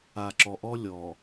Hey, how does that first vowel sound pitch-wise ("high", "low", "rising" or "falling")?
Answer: low